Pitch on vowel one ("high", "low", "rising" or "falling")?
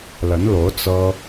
rising